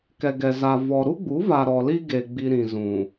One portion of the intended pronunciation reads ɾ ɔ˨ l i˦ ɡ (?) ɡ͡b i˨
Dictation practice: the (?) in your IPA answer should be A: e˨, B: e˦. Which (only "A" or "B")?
A